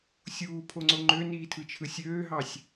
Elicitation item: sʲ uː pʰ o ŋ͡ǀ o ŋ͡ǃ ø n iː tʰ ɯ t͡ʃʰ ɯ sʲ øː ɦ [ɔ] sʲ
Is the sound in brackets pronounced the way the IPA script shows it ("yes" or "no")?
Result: no